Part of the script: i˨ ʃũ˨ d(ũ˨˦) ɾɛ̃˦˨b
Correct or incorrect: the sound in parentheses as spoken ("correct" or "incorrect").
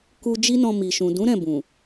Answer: correct